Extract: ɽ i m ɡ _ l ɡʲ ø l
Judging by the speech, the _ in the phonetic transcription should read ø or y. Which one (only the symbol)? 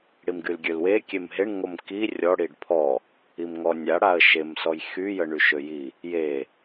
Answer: y